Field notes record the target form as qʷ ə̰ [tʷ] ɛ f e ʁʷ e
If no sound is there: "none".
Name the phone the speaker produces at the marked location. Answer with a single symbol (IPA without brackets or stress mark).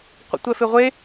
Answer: tʷ